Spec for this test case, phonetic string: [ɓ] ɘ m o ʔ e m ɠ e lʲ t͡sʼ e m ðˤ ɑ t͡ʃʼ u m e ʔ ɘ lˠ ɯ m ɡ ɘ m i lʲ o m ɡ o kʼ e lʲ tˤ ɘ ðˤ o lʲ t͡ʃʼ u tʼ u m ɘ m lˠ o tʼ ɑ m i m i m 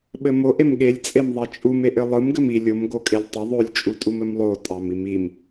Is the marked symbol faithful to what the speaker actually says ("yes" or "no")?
yes